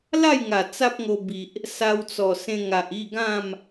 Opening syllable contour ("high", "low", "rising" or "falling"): falling